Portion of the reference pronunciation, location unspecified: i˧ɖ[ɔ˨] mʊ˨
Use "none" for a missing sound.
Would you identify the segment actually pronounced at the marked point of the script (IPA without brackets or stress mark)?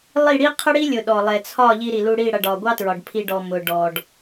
ɔ˨